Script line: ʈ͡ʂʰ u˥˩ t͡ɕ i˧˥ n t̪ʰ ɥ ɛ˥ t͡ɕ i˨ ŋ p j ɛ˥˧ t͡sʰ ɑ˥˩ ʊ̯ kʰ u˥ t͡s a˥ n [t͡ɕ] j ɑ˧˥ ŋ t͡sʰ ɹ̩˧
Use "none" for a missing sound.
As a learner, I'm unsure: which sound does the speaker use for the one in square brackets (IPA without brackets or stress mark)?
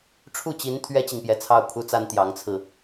t̪